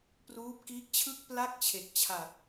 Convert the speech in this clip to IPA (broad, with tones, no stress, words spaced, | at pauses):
pruː˦˥p̚kiː˦˥k̚t͡ɕʰɯ˥˩k̚ pla˥˩k̚t͡ɕʰe˨˩k̚t͡ɕʰa˨˩t̚